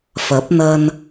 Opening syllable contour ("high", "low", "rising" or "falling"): rising